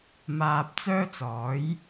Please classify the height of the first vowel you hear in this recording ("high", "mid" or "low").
low